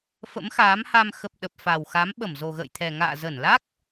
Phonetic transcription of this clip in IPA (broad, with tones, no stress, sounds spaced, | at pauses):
f ə̰˧˥ m x aː˨˦ m h a˧ m x ə˨˩ p̚ ɗ ə˨˩ p̚ f a˨˩ w x a˨˦ m ɓ ə˧˩ m z o˨˩ ɣ ə̰ː˧˨ j t̪ʰ ɛ˨˩ ŋ a̰ː˧˨ z ə˧˩ n l a˦˥ k̚